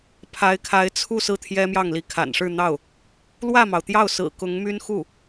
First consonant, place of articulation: labial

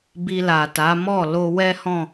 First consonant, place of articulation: labial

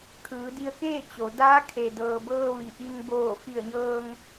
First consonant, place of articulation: velar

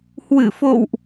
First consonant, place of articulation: glottal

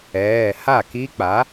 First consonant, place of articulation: glottal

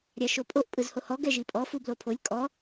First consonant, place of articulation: alveolar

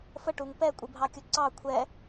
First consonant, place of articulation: labial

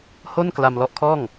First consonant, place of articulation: glottal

